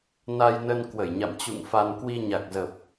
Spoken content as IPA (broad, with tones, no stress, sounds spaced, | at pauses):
n a˧ j n ə˧ n k w ə˧˩ j ɲ a̰˧˨ m t͡ɕ ṵ˧˨ ŋ f a˧ n k w i˧ ɲ a˨˩ k̚ z ə˨˩ p̚